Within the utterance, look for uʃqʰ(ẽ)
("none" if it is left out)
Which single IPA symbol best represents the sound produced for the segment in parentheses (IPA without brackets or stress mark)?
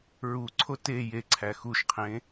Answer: ẽ